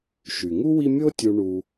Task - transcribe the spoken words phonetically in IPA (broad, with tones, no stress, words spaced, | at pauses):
ʃy˩ŋu˥wi˦ mʲo˦tʲu˨ ɳu˨